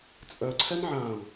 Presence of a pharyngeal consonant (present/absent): present